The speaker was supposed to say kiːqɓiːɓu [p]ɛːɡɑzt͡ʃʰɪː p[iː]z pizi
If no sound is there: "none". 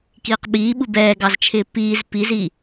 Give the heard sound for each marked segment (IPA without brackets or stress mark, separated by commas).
b, iː